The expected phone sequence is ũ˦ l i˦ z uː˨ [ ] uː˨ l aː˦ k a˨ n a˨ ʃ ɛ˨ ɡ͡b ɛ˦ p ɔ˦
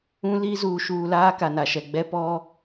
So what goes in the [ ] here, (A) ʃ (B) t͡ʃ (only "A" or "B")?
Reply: A